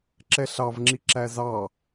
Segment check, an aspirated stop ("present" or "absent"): absent